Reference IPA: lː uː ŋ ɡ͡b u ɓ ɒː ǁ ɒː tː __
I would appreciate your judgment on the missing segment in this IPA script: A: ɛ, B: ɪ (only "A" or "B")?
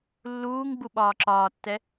A